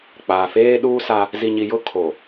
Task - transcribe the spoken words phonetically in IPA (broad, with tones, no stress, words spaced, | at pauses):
k͡paː˨feː˦ɗuː˦sa˦ | zi˨ɲi˨jʊ˦ kʰo˨